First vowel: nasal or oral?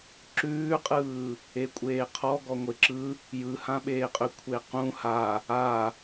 oral